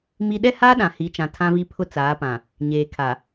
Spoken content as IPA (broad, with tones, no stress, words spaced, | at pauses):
mi˦ ɗɛ˦haː˦ ɗã˨hi˨˦t͡ʃã˨ tʰã˦vi˦ pʰʊ˦ t͡saː˨˦pã˨ | ɲeː˨kʰa˨